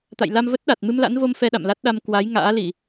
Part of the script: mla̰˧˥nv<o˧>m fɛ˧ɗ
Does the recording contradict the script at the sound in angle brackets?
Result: no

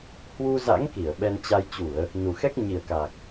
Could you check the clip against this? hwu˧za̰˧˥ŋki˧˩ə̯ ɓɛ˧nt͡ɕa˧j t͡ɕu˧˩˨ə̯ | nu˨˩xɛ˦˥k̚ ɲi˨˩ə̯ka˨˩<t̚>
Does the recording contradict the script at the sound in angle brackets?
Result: yes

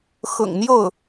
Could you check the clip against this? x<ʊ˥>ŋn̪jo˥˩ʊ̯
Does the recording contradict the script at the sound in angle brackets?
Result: yes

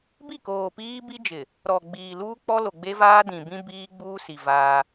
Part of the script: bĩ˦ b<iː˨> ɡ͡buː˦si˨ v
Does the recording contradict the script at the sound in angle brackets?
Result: yes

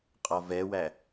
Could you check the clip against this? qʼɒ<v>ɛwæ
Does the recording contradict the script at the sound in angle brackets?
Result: no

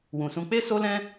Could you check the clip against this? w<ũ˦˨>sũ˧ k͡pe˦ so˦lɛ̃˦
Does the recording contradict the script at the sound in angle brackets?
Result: yes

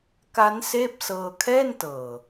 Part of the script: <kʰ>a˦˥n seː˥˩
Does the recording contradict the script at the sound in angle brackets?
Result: yes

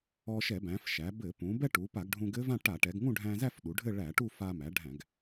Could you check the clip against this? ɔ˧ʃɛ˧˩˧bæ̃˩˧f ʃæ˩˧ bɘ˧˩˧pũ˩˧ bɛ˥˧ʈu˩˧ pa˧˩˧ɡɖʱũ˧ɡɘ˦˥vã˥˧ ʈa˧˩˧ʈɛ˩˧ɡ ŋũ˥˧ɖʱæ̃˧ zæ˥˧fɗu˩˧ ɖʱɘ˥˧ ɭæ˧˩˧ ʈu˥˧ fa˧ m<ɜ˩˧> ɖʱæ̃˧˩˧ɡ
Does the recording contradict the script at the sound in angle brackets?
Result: yes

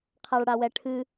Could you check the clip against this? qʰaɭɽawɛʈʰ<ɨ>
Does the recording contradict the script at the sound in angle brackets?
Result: no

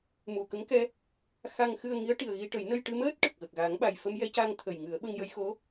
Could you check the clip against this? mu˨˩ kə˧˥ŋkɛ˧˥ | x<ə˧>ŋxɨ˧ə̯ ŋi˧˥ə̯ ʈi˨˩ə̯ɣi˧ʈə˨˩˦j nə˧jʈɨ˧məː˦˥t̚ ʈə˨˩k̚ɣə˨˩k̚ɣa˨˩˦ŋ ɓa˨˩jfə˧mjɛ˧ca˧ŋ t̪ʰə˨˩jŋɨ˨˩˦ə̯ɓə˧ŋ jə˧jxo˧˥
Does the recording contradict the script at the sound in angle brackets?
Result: yes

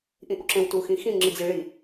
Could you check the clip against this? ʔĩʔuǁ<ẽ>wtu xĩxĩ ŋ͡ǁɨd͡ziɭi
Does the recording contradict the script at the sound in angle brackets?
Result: no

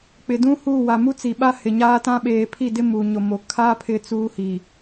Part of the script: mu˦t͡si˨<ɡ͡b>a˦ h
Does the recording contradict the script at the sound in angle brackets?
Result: yes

